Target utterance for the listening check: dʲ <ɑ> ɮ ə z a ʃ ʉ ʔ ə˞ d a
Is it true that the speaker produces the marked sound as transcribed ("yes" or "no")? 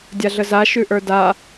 no